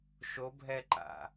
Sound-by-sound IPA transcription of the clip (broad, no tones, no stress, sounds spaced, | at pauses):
ʃ o bʱ ɛ ǃ a̰